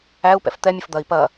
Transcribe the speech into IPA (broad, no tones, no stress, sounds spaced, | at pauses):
æ u̯ p ɛ̰ f t̪ ɛ mʲ ə f d̪ ɐ i̯ p ɐ